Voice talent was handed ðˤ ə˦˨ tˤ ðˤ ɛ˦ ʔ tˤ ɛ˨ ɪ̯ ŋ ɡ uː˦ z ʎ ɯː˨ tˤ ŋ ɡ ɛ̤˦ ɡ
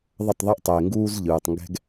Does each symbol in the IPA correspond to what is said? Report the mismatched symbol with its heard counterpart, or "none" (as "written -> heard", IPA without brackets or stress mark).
none